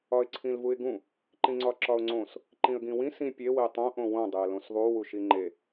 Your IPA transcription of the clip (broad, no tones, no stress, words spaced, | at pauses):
ɒɪ̯ǀʰĩlvuɪ̯ɡũ | ǃĩŋ͡ǀɒǁɒʊ̯ŋ͡ǀõs | ǃĩə̯ɡĩwĩ sĩ pʲe wetˤõ ʔõwõ dˤeə̯lõsðˤu wuʃiŋ͡ǃe